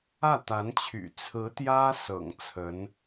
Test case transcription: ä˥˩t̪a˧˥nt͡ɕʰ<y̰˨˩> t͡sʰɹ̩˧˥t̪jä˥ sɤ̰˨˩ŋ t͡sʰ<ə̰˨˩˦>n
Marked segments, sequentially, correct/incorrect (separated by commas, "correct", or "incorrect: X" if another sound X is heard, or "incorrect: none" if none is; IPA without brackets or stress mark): correct, incorrect: ə˧˥